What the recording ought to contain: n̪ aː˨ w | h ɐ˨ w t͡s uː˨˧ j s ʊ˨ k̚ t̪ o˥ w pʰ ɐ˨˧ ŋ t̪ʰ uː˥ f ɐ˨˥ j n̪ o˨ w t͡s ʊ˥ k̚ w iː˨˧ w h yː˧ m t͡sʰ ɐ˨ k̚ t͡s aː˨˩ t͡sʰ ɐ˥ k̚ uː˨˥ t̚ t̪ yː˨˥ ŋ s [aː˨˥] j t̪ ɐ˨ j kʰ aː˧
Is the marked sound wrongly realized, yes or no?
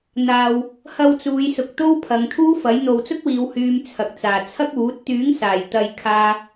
yes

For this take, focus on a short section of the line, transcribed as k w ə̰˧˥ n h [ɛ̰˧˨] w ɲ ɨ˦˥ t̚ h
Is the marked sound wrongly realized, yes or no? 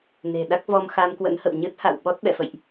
yes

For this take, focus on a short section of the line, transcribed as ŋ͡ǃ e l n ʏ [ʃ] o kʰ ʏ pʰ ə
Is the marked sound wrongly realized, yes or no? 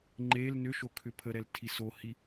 no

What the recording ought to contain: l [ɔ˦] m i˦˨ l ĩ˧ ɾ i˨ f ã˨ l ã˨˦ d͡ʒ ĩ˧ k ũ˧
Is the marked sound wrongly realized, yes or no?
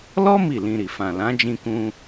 no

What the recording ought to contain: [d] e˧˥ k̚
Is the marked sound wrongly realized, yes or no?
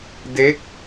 no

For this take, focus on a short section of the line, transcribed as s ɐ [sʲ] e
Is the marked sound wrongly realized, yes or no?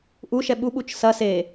yes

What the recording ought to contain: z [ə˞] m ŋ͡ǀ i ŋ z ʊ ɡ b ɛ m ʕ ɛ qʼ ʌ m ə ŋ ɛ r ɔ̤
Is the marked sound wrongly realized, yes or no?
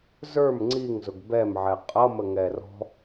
no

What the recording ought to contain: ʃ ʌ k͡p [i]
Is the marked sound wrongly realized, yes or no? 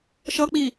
no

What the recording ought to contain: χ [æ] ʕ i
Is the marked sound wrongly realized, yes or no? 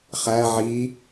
no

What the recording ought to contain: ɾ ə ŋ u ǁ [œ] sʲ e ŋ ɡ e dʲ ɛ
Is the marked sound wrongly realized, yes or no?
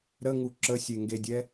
yes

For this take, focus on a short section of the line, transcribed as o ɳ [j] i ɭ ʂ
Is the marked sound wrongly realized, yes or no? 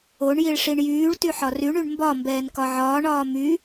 no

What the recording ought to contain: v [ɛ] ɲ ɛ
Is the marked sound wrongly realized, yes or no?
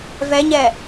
no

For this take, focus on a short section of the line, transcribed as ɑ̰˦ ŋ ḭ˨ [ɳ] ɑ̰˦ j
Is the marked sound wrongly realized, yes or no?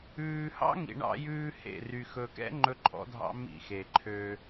no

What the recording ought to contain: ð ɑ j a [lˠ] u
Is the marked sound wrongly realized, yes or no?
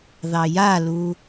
yes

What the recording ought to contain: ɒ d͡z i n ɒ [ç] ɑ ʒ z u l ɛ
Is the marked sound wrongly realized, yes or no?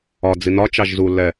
yes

